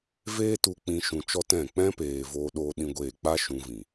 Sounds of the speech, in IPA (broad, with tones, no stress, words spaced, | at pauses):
veː˦tu˧k͡pĩ˧ ʃũ˧t͡ʃɔ˦tɛ̃˦˨ k͡pɛ̃˦peː˨ voː˦ɗoː˦ɗĩ˦ɡʷeː˦˨ k͡pa˦ ʃũ˧vĩ˨